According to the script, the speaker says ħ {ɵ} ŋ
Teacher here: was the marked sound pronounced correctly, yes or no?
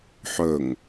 yes